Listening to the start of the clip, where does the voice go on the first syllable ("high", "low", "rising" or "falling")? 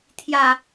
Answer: falling